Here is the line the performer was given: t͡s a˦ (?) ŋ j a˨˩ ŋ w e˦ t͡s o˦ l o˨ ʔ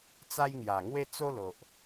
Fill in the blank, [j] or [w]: j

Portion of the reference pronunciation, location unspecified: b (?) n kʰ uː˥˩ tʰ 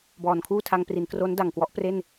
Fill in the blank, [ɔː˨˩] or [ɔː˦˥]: ɔː˨˩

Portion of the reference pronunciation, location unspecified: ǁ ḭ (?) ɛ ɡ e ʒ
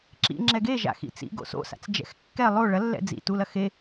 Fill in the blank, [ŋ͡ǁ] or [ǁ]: ŋ͡ǁ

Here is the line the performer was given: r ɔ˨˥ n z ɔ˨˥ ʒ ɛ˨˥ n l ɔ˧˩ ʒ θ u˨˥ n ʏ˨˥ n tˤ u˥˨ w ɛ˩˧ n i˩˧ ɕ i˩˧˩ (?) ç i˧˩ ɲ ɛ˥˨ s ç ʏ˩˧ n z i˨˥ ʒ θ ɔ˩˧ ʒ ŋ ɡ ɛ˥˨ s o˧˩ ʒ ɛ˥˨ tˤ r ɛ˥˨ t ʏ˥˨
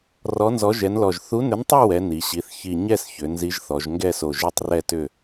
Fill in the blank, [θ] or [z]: θ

